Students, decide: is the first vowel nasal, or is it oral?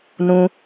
nasal